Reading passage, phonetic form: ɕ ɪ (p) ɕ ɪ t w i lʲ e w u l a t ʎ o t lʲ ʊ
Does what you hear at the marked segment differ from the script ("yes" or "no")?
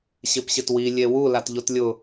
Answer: no